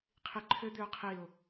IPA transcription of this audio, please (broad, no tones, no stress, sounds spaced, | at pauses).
qʰ i ǃʰ ʏ d̪ ʏ ʊ̯ qʰ i ʊ̯